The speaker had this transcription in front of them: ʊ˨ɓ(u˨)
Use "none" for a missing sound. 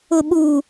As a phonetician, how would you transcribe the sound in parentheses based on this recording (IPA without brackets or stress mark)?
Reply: u˨